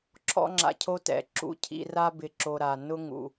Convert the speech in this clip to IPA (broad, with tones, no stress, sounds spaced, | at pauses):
ǁʰ ɔ̰˦ ŋ͡ǁ a̰˧ cʰ o˦ t ɛ̰˨ ǁ ṵ˧ cʰ ḭ˧ r a˦ b ɪ˧ ǁ o˧ ɾ a˨ n ʊ˦ ŋ ṵ˨